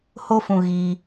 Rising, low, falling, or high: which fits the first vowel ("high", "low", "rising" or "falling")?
high